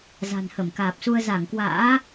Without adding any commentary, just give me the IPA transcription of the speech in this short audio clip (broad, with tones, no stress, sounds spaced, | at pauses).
z a̤˨˩ n h ə˧˩ m k aː˨˩ p̚ s u˧ ə̯ z a˧˩ ŋ k w a̰ː˧˥